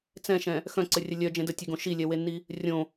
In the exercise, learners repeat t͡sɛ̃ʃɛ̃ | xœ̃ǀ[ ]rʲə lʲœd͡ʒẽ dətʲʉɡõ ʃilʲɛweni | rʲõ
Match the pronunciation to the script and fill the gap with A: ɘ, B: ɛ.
A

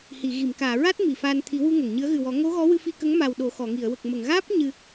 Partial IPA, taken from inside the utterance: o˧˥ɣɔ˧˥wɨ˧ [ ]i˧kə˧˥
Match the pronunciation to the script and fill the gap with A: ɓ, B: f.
B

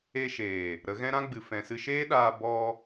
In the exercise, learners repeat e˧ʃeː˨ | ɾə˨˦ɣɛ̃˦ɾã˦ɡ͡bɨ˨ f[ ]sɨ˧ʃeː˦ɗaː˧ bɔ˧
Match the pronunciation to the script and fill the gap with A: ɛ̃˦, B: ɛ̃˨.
B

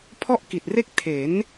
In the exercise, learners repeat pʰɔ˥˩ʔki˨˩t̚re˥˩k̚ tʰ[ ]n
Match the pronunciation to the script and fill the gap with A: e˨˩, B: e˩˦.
B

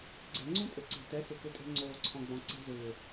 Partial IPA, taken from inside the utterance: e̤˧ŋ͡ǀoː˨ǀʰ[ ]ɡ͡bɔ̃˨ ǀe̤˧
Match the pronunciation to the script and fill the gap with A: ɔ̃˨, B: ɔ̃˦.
A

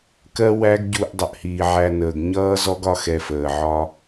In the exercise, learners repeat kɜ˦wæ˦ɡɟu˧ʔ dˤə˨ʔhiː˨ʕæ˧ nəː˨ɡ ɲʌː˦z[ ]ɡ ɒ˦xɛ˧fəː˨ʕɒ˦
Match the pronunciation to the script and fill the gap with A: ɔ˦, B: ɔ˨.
A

